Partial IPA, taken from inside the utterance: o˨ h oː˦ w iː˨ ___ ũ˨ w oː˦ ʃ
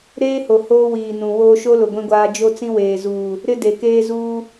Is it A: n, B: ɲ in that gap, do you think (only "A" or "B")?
A